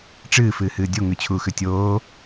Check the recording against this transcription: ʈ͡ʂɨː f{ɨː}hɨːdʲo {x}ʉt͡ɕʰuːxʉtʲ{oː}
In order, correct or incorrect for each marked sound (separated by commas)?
correct, incorrect, correct